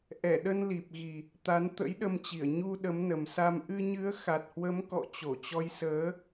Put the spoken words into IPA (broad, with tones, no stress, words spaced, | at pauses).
ʔɛ˧˩ɗə˧n li˨˩p̚ ɣi˨˩ | t̪a˨˦n t̪ə̰˧˥jɗə˧mt͡ɕi˧˩ə̯ ɲu˧ ɗə˨˦mnə˨˩msa˧m ʔɨ˧ɲɨ˨˦ə̯ xa˨˩t̚hwə˨˦mkɔ̰˧˨ t͡ɕo˧˩t͡ɕɔ˨˦j səː˨˦